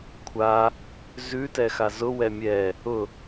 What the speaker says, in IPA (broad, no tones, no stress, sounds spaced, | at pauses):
kʷʰ a | z ʉ t ɛ x a z ʊ w ɛ mʲ ɛ | ʊ